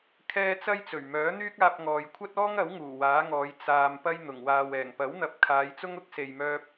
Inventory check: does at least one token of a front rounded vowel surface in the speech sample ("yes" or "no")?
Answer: yes